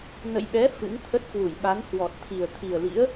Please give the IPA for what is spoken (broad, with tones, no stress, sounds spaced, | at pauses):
n ə̰˧˨ j ɓ ɛ˨˦ f ɨ̰˧˥ ŋ t̪ʰ ə˦˥ t̚ k w u˧˩ j ɓ a˨˦ n h w ɔ˨˩ t̚ t̪ʰ i˨˩ ə̯ t̪ʰ i˨˩ ə̯ l ḭ˧˥ ə̯